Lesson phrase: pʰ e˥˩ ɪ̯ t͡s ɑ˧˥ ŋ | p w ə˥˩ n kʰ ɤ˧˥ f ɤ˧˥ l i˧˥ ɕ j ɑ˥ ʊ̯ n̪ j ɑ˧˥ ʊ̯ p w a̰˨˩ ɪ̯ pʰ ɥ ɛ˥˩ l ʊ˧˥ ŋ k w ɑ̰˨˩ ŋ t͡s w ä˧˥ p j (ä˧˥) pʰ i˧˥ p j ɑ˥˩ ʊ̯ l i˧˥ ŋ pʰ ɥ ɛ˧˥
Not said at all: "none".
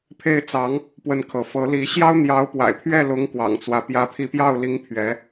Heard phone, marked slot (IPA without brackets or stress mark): ä˧˥